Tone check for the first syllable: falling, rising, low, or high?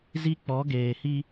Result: high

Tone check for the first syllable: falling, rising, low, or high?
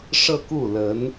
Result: falling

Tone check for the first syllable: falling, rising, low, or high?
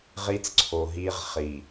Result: high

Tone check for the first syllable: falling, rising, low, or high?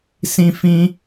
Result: high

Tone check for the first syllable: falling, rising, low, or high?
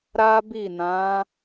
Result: high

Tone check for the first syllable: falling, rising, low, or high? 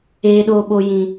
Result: high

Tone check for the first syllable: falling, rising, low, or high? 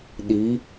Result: rising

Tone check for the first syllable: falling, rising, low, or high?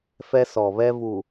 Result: high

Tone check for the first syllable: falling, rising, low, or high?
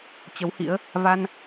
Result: rising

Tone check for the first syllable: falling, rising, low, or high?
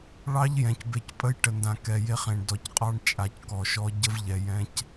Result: high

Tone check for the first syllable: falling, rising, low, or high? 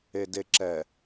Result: low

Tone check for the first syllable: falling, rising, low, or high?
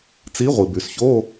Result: rising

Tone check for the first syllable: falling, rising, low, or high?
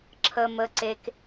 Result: high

